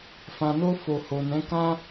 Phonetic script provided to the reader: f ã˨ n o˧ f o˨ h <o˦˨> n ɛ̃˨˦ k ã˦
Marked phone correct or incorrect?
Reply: incorrect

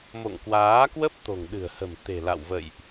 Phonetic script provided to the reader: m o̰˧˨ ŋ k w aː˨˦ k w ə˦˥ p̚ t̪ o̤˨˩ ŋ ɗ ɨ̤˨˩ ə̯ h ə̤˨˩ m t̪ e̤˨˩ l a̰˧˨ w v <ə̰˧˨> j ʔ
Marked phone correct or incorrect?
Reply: correct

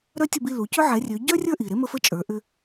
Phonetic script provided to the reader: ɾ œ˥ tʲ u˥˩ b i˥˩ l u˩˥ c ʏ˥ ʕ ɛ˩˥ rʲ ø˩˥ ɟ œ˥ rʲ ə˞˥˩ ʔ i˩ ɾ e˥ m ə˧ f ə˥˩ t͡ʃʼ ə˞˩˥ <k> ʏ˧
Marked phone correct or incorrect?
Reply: incorrect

